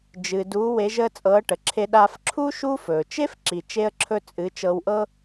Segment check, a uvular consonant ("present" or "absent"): absent